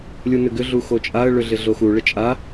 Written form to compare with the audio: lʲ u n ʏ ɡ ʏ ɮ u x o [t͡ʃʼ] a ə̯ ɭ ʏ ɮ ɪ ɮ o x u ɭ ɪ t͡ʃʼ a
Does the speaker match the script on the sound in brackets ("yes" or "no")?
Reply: yes